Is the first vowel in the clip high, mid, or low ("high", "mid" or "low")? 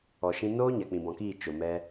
mid